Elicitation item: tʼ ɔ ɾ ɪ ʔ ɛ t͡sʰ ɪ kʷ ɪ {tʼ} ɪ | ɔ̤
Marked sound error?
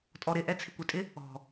no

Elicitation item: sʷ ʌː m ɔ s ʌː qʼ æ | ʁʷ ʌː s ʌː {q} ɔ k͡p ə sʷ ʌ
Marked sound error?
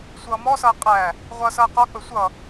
no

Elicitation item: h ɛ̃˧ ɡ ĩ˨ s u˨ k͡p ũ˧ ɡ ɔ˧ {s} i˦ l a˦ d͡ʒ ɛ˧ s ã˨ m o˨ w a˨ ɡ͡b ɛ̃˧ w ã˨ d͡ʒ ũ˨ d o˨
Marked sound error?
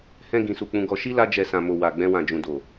yes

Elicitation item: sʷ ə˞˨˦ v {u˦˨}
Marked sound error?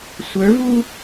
yes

